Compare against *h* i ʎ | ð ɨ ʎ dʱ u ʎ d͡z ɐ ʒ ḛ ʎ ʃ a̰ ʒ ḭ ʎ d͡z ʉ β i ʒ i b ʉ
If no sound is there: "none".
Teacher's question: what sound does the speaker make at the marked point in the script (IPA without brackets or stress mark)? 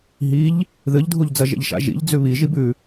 ɦ